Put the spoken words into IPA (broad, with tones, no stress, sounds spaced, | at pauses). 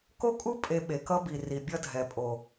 k o˦ kʼ u˦ pʼ e˧ ɓ e˨ k ʌ˦ b i˨ r i˨ bʲ ʌ˦ dʱ ɛ˨ pʼ o˨